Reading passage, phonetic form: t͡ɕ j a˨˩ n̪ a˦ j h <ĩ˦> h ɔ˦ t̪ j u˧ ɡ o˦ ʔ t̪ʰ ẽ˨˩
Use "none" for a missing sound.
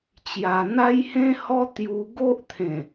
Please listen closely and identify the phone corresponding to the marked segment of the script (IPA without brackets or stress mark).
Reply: ẽ˦